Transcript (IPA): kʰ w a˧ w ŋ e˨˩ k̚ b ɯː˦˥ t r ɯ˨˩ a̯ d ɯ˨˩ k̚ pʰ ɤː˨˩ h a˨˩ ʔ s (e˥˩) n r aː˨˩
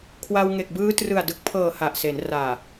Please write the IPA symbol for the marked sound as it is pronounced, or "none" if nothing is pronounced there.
e˩˦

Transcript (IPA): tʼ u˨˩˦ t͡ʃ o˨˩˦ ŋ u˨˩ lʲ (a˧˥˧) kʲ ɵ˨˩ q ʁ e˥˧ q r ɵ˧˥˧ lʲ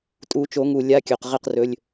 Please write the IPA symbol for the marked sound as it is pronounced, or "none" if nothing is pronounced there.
a˧˥˧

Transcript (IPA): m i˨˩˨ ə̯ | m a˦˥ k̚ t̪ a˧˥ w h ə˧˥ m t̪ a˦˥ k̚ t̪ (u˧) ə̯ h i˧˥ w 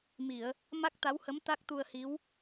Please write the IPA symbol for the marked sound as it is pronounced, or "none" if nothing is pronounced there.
u˧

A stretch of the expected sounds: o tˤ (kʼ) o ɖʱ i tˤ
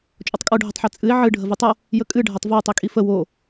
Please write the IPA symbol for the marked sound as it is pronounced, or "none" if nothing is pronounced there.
kʼ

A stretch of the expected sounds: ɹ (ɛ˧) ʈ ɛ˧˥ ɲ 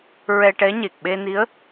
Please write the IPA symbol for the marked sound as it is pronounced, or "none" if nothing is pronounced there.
ɛ˧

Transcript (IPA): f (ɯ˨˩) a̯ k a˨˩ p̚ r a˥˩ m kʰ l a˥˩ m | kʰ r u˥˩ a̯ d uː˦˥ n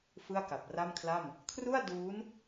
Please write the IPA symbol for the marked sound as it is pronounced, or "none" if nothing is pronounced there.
ɯ˥˩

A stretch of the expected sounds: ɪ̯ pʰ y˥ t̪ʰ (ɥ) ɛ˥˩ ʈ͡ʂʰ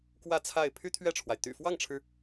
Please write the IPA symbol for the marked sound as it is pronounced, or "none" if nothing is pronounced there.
ɥ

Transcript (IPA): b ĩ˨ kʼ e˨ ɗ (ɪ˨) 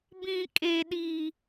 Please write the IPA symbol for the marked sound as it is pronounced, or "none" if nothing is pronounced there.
i˨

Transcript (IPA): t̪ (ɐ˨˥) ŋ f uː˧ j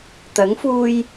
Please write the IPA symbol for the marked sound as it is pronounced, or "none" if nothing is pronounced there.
ɐ˨˥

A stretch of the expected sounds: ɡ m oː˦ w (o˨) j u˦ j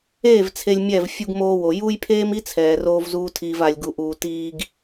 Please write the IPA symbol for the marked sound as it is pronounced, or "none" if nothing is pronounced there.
o˨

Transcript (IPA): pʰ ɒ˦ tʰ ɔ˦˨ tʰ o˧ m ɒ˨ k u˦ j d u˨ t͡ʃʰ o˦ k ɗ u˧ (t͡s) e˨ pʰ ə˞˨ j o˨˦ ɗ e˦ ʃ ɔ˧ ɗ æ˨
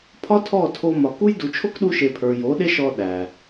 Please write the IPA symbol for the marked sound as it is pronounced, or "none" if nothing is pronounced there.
ʃ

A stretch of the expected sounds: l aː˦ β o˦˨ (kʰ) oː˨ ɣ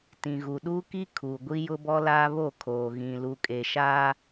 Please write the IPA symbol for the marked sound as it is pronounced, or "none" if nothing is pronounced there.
kʰ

